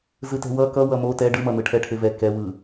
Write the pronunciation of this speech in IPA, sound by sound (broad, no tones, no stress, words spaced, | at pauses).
zɯtɛ̤wʌ kʌ wʌmo tɛ ɖɯmʌn̪ɯ ʈʰɛʈʰevɛ kɛwɯ